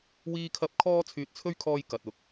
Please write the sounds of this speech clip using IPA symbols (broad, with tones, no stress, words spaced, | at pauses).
wiː˥kʰɐ˥p̚ kʰɔː˥ t͡sʰyː˨t̚t͡sʰɵ˥ɥkʰɔː˧j kɐ˨t̚ʊ˨˥k̚